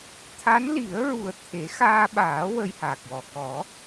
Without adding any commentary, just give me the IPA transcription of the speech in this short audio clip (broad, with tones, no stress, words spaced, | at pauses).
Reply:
t̪ʰa˧˥nli˨˩˦ə̯ɹu˨˩ə̯ t̪ʰe˨˩˦ xaː˧ɓaː˨˩˦ wə˧jha˨˩k̚wɔ˨˩ kɔ˨˩˦